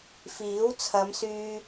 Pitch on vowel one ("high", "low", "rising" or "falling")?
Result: rising